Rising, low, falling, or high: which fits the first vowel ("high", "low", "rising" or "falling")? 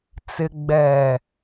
low